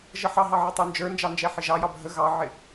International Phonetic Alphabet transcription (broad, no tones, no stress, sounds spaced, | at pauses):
ʒ ə ħ ɑ ɦ ɑ ʕ ə tˤ ə˞ n d͡ʒ ə˞ n d͡ʒ ɑ n d͡ʒ ɛ ħ ɪ ʒ ɑ j ɑ bʱ ə ɣ ɑ ʕ ɪ